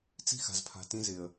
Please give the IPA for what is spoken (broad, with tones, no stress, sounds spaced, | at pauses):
t͡s i̤˦ x a̤˨ z pʰ a̤˨ t ĩ˦ z ɪ˨ ə̯